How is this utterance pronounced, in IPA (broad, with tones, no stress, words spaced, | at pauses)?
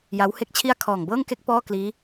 ja˦˥whe˥˩k̚t͡ɕʰi˥˩a̯ kʰɔː˨˩ŋbɤː˥˩ŋke˥˩k̚ pɔː˥˩kliː˦˥